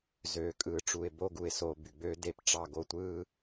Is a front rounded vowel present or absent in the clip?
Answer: present